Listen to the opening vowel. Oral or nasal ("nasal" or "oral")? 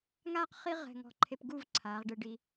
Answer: oral